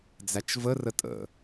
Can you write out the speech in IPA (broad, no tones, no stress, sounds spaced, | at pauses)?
d͡z æ t͡ʃ v ə r ə tʼ ə̰